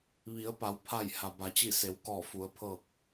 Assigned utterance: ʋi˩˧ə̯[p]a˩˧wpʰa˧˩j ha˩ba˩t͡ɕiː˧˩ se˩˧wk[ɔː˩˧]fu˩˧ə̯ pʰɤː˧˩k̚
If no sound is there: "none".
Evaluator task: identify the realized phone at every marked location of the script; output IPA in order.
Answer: p, ɔː˧˩

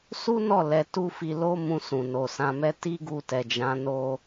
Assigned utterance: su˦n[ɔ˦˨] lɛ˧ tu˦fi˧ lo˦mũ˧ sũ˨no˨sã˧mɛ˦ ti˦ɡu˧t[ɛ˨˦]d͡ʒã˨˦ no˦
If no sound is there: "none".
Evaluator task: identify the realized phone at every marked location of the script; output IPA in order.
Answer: ɔ˦˨, ɛ˨

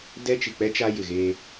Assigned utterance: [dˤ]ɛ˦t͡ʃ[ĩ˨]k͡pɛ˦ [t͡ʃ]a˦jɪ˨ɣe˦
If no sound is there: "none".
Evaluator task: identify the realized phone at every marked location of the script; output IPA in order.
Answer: d, i˨, t͡ʃ

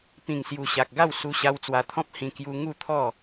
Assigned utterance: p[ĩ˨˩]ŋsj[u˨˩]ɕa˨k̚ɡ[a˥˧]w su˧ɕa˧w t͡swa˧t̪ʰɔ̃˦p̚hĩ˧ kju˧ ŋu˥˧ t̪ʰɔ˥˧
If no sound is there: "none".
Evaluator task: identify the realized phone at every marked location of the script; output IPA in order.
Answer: ĩ˨˩, u˨˩, a˥˧

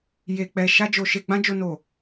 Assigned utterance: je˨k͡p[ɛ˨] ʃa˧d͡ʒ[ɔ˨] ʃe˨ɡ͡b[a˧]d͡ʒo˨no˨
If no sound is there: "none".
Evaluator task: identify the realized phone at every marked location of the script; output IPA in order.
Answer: ɛ˨, o˨, ã˧

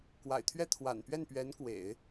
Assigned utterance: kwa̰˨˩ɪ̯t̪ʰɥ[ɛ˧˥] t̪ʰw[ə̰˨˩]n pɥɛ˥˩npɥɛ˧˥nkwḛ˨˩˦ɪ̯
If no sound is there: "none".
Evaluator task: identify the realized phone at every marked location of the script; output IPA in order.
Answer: ɛ˥˩, a̰˨˩

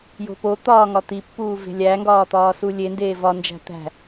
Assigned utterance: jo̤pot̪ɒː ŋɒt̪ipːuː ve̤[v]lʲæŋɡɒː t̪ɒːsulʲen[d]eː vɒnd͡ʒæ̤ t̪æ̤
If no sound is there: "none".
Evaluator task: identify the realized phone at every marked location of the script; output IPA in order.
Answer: none, d

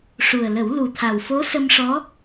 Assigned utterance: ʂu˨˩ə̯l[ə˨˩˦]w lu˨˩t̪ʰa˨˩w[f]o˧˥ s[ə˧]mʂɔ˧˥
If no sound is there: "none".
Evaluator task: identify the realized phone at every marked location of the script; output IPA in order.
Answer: ə˨˩˦, f, ə˧

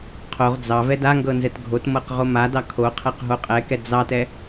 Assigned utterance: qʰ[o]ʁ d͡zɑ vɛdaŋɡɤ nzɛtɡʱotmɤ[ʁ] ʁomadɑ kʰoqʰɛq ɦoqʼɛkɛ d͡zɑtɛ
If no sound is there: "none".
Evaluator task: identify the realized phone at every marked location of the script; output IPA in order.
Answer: o, q

